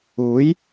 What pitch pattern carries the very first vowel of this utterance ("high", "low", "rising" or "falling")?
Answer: rising